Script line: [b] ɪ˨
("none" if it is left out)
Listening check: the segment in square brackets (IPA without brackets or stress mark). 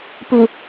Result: p